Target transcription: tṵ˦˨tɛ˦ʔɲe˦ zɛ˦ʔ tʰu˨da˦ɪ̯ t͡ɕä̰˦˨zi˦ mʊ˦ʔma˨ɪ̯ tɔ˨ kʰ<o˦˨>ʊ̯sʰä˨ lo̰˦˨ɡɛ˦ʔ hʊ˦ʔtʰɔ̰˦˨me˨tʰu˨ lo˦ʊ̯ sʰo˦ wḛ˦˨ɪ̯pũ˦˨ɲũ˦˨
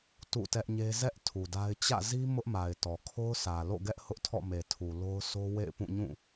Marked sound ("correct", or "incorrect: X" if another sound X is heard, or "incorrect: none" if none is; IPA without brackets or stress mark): incorrect: o˦